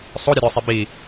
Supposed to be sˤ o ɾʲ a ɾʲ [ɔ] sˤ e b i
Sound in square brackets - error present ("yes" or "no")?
no